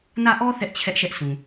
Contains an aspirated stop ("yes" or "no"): yes